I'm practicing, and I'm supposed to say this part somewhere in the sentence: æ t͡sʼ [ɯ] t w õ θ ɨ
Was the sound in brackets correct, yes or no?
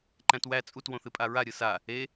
no